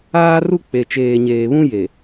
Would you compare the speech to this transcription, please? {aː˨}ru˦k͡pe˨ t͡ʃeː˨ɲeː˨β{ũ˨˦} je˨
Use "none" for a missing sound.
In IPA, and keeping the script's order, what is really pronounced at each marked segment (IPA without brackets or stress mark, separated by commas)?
aː˦, ũ˦